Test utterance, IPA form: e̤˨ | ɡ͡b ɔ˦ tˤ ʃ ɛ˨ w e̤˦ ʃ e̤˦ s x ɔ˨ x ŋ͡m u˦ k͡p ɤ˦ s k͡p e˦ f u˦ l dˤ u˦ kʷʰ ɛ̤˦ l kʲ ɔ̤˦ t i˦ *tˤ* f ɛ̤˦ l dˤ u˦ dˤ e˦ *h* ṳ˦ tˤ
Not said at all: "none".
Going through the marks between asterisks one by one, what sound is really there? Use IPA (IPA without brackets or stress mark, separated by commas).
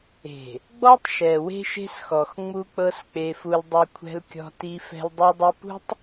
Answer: none, p